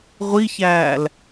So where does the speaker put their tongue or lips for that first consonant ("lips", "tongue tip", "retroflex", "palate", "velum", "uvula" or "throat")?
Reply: uvula